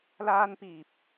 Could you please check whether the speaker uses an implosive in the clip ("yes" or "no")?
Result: no